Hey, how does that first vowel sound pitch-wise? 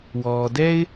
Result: low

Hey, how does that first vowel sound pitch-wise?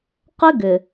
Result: high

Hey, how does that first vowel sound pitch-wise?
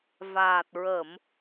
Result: low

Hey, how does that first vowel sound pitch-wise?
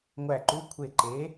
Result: falling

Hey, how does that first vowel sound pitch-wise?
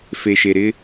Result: low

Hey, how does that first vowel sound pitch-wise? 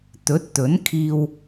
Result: rising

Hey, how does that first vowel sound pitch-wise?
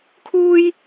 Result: high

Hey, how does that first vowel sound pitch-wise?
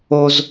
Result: high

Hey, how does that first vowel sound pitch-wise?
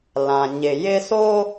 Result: low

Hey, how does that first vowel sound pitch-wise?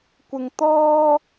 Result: high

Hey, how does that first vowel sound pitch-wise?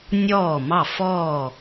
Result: falling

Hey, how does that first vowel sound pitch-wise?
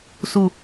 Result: falling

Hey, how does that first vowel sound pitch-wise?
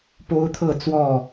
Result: high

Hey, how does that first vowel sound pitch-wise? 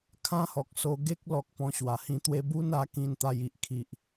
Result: high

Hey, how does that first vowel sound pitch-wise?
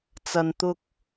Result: low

